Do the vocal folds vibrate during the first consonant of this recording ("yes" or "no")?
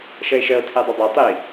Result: no